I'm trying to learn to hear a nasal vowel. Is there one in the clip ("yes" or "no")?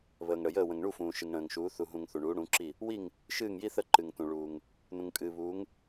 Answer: yes